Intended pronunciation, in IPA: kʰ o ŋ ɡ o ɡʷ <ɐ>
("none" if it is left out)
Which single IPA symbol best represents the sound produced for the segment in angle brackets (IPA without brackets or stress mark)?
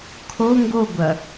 ɐ